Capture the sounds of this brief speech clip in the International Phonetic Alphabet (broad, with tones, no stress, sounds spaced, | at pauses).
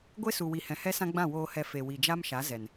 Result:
ɡʷ e˦ s u˨ w i˨ h ɛ̃˨ h ɛ˦ s ã˦ ɡ͡b ã˦˨ w oː˨ h ɛ˨ f e˨ w i˨ d͡ʒ a˦ m ʃ a˨˦ z ɛ˨ n